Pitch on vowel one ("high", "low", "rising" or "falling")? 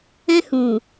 high